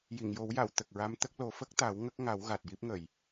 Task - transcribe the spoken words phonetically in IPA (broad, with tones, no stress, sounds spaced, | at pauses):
j i˨˩˨ ŋ j o˨˩˦ w j a˨˩˨ w t̪ ə˨˩ k̚ ɹ a˧˥ m t̪ ə˦˥ k̚ l o˨˩˦ f ə˦˥ k̚ t̪ a˨˩˦ w ŋ ə˦˥ k̚ ŋ a˨˩˦ w ɣ a˨˩ t̚ j i˦˥ p̚ ŋ ə˨˩˨ j